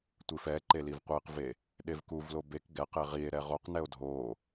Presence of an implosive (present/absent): present